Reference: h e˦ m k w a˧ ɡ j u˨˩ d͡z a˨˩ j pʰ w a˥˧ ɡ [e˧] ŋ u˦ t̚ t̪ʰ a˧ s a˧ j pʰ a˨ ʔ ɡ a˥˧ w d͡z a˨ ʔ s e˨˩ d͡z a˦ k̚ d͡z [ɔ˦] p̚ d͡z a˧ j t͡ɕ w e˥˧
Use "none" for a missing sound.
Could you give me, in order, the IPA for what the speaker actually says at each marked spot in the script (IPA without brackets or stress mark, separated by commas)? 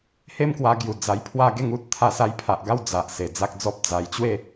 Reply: e˥˧, ɔ˦